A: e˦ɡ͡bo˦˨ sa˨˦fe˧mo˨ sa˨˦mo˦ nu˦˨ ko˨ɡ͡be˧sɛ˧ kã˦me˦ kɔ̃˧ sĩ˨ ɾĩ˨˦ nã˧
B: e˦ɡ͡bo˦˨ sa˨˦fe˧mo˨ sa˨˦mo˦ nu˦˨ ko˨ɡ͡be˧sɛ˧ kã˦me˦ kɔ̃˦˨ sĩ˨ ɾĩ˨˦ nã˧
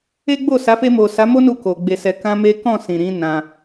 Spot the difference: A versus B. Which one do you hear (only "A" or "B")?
B